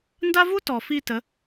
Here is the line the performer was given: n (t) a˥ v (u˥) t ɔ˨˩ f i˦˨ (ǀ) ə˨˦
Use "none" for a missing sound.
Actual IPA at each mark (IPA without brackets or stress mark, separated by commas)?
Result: d, u˥, t